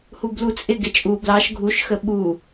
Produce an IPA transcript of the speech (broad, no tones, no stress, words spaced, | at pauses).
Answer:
hublut͡sʼɪɡɪ t͡ʃʼu blɑʃ ɡʱuʃxə ɓu